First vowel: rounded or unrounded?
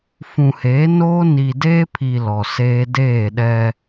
rounded